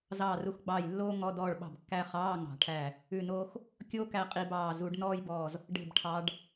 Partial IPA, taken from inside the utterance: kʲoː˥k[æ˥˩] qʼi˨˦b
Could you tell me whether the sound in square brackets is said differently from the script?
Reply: yes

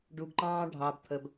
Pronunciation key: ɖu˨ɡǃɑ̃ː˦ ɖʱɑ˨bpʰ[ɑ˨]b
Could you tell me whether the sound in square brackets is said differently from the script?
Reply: yes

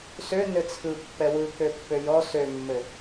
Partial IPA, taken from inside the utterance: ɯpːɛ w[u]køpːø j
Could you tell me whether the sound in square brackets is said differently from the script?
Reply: yes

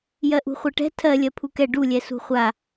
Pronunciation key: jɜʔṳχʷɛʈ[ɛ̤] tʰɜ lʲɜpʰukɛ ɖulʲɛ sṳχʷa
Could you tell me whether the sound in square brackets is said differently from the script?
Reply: no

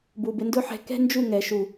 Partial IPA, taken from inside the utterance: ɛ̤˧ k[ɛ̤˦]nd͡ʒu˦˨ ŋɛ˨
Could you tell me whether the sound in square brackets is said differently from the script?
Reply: no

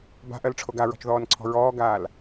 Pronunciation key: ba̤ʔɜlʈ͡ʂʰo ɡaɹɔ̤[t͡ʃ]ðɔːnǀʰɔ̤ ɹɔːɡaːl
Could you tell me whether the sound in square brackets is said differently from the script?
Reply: no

